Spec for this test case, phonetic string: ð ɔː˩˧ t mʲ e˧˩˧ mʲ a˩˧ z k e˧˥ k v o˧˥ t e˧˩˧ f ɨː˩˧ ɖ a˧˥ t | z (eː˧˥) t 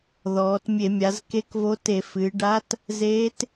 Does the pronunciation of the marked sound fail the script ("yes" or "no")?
no